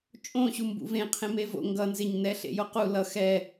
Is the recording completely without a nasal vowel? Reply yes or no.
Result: no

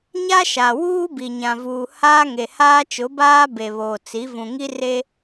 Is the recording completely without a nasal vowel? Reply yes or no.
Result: no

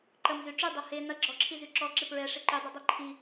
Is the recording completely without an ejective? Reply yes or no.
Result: yes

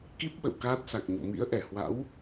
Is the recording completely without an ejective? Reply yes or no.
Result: yes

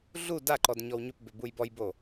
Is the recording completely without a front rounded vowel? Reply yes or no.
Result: no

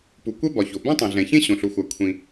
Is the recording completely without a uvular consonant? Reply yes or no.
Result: yes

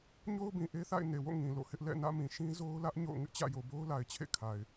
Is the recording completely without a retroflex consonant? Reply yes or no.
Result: yes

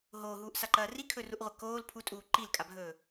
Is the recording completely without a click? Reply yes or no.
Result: no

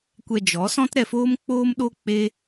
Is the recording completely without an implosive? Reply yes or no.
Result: no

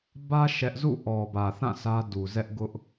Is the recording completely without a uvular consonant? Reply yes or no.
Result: yes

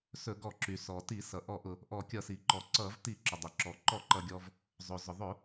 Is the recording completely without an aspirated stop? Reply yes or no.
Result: yes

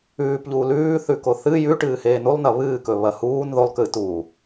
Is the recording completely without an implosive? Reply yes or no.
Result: yes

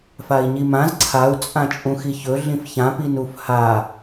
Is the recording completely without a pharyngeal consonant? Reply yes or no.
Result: yes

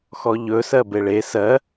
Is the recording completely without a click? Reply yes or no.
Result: yes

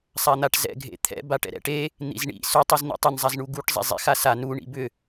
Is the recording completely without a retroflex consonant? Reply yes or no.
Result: no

